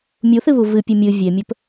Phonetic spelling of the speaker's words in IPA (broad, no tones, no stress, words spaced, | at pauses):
mʲuθɨβu vɨpʲe mʲɨ vʲemʲɵp